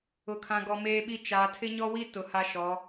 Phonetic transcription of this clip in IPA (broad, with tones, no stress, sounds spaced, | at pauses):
ʊ˨ kʰ ã˨ ɡ ɔ˨ m eː˦ ɓ i˦ t͡ʃ a˨ tʰ ɪ˦ ɲ ɔ˦ w i˦ t ʊ˨ h a˦ ʃ ɔ˨˦